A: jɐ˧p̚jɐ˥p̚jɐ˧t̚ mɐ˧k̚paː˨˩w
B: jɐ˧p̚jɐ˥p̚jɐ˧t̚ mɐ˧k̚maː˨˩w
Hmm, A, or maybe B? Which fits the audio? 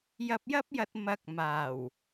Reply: B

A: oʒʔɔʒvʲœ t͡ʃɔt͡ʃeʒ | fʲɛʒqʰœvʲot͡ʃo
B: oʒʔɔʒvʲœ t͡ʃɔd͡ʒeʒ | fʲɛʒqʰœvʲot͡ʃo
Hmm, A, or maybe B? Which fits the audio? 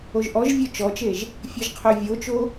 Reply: A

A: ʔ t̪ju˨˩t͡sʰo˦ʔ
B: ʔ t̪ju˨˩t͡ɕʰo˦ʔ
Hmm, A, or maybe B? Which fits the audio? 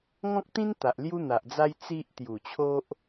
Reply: B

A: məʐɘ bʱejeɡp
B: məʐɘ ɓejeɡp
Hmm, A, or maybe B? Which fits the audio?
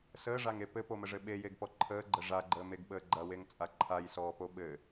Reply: B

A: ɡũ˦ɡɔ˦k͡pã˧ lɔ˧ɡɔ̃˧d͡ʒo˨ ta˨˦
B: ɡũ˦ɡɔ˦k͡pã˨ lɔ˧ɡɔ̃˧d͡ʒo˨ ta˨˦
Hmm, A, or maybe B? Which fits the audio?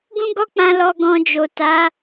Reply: A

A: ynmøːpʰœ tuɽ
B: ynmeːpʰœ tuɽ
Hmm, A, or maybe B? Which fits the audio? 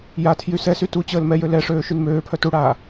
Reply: A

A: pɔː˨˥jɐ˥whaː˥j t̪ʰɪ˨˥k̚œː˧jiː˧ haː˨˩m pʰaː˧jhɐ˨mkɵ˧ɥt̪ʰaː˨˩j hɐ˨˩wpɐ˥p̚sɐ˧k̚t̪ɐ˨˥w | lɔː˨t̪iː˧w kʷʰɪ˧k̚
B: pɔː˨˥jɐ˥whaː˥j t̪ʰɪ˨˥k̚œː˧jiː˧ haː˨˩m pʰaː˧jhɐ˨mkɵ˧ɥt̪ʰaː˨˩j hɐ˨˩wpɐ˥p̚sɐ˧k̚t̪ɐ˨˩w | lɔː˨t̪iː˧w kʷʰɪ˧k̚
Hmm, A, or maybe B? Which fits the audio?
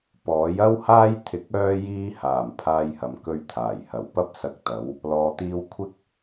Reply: A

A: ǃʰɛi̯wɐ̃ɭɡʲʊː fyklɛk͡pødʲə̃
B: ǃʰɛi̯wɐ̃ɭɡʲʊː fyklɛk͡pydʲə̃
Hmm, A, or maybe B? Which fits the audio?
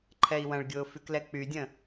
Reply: B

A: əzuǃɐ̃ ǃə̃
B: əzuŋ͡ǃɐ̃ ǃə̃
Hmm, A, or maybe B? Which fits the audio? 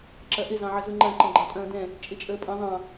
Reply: B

